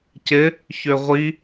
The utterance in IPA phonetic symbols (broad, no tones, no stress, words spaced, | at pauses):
cɪ | çøʁʷi